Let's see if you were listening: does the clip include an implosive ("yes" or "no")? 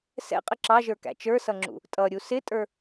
no